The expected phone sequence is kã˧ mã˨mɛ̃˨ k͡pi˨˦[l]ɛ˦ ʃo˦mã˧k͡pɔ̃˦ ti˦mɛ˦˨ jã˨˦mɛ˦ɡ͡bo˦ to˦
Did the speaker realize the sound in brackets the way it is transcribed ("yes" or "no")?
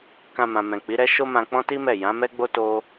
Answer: no